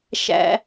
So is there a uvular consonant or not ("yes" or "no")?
no